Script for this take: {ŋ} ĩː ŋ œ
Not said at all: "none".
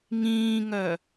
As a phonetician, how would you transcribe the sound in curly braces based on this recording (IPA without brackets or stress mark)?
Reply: ŋ